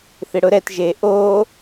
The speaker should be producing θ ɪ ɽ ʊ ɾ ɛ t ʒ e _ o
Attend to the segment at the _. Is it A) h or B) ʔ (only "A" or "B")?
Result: B